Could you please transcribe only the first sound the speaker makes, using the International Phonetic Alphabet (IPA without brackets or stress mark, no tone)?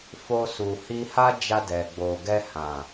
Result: f